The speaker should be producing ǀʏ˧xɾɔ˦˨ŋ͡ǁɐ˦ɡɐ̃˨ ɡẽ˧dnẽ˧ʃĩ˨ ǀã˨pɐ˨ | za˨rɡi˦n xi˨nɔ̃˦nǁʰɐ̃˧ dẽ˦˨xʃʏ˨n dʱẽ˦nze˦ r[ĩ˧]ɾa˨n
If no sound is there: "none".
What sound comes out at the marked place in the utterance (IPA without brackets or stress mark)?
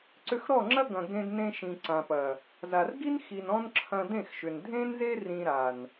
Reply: ĩ˧